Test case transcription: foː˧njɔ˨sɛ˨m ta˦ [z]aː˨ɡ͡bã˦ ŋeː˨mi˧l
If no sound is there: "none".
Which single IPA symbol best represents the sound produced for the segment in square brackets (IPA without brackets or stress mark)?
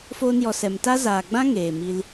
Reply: z